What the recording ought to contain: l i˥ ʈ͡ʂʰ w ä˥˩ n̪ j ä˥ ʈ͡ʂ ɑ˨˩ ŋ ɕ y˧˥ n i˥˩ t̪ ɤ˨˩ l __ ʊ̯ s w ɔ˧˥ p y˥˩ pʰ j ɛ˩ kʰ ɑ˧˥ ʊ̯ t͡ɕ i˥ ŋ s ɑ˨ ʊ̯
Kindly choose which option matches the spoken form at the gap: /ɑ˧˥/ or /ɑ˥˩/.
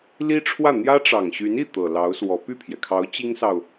ɑ˧˥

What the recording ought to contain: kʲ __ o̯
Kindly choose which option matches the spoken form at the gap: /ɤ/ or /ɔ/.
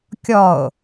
ɔ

